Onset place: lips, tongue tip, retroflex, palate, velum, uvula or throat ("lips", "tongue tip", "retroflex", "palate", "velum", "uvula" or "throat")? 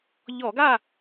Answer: palate